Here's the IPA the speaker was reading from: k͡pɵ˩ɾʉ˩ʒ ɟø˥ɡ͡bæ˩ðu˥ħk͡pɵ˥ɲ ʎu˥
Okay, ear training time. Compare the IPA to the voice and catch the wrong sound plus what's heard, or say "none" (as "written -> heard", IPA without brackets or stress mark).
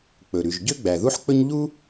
none